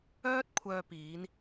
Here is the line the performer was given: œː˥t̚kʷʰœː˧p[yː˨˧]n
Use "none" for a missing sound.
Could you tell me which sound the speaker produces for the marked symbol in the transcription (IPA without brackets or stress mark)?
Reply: iː˨˧